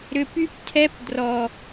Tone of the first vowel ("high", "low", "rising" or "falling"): low